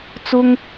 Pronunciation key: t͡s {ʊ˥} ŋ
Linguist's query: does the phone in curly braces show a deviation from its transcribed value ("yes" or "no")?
no